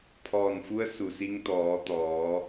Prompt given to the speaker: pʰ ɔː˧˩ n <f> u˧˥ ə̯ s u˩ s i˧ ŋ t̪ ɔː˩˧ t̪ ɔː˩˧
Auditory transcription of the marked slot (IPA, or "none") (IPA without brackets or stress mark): f